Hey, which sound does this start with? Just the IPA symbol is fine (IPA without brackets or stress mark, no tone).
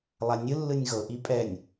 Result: lˠ